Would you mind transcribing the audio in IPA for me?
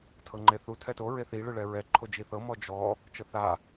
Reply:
tʰ ɤ ŋ͡ǃ e θ u tʰ ɛ t o ɹ e θ i ɭ ɯ ɭ ɛ ɹ ɛ ǃʰ o d͡ʒ i θ ɤ m ɔ d͡ʒ ɔ | t͡ʃ ɤ θ a

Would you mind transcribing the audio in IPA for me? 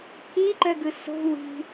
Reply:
pʰ i ǃ œ ɡ ɯ s o̤ w i̤

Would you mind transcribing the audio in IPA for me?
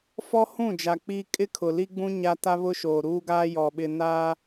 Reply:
f ɔ˦ h ũ˦˨ d͡ʒ a˨ k͡p iː˦ kʼ ɪ˦ kʰ ʊ˨ l i˦ ɡ͡b ũ˦ ɲ a˦ t a˦ β ʊ˦ ʃ oː˨ ɾ uː˦ ɡ aː˦ j ɔ˨ ɓ ɪ˨ n aː˦

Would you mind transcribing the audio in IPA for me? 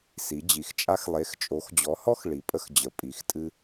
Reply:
s i˨˥ d͡ʑ i˨˥ x t͡ʃʼ a˥ x lˠ e˨˥ x t͡ʃʼ o˨˥ x d͡ʑ ɔ˨˥ h ɔ˥ x ɭ i˨˥ pʼ ə˥ x d͡ʑ ə˨˥ pʼ i˨˥ x tʼ ɨ˥

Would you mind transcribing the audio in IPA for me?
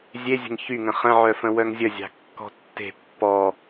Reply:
zʲ e zʲ ə̤ ŋ ç y ŋ ə̃ χ ə̃ ʕ œ f ə̃ w œ ŋ zʲ ə zʲ ɑ̤ kː ɔ̤ tː e̤ pː ɔ

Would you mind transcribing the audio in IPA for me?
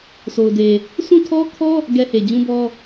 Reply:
sʰ o˨ ʊ̯ d e˨ | sʰ ũ˦˨ tʰ ɔ˦ kʰ ɔ˦ | ɡ ɛ˦ h e˨ d͡ʑ ũ˦ b ɔ˦

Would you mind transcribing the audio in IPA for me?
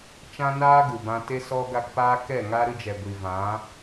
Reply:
t͡ʃ ã˦ n aː˦ ɡ u˨ b ã˧ t e˧ s ɔ˧ ɡ a˧ k p aː˧ k ɛ˦˨ ŋ a˦ ɾ ɨ˧ d͡ʒ ɛ˨ ɡʷ i˨ v ã˨˦

